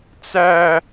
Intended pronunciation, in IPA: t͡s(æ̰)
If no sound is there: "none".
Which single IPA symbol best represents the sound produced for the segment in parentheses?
æ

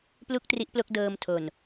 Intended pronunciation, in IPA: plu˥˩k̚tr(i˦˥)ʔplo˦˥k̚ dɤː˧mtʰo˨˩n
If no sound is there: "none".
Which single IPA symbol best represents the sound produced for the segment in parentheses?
i˦˥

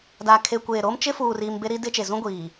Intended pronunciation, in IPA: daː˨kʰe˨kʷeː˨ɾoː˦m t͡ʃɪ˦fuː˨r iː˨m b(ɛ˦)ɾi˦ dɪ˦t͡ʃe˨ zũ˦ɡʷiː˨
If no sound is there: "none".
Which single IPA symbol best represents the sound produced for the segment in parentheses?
e˦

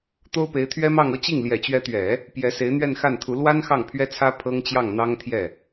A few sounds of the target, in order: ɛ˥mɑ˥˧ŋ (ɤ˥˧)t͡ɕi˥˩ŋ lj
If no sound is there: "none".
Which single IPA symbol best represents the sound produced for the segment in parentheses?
ɤ˥˧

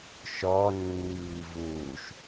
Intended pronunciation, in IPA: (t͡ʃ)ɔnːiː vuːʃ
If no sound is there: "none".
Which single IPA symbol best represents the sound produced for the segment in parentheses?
ʃ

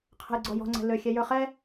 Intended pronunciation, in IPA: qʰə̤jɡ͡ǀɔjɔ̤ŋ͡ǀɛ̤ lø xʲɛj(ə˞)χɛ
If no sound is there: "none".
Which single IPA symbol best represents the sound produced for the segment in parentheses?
ə˞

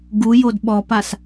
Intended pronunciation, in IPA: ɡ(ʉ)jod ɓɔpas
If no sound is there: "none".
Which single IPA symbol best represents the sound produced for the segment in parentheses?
u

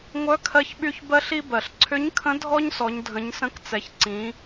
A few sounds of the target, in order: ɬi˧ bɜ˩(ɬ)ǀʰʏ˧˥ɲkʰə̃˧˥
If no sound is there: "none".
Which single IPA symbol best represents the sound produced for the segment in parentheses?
ɬ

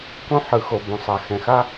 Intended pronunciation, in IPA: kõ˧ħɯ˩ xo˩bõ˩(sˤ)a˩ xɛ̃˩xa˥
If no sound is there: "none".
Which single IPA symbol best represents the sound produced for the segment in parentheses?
sˤ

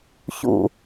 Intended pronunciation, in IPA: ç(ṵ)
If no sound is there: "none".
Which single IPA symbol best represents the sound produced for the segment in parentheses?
ṵ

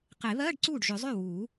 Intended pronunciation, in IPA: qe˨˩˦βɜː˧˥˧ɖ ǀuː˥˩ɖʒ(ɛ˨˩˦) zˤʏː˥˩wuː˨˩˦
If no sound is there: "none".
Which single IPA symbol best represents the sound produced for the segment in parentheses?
ʏ˨˩˦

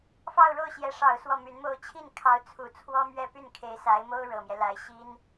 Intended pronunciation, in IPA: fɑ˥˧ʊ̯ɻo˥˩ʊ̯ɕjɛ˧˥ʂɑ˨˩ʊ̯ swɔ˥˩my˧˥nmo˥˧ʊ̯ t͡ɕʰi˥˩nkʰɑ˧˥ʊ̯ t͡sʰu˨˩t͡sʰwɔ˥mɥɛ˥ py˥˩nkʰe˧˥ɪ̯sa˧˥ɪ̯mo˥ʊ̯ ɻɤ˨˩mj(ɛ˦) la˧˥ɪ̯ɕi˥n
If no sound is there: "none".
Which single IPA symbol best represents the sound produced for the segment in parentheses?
ɛ˦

